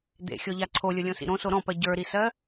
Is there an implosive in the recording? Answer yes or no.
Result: no